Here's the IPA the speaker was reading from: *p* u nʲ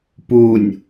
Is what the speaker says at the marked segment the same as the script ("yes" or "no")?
yes